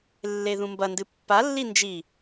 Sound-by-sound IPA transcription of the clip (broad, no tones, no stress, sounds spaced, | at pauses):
lː e ð ũ m b ɐ n d ɨ pː a lː i n d͡ʒ i